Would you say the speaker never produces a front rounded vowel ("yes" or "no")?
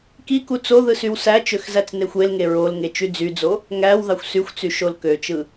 no